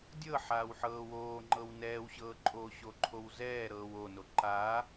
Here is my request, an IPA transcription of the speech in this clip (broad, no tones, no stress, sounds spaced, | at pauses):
dʲ ɤ ħ aː w ħ ɤː w oː ŋ͡ǃ ɤ w n ɛː w ɕ ɤː ǃʼ oː ɕ o ǃʰ o w z ɛː ɾ ɤː w o n o ǃ aː